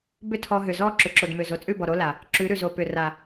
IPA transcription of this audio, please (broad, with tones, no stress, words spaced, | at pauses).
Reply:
bʏ˦tʰɔ˧ɦʏ˨zɔ˦ ǁʏ˨ǁo˨dmʏ˨ zo˨t͡sʼʉ˦˨bɔ˨ ɾo˦la˨ | ǁʉ˨˦ɾʉ˨ zo˨pʏ˨ ra˨